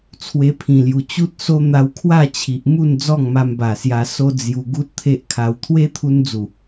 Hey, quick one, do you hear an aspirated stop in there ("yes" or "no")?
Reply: yes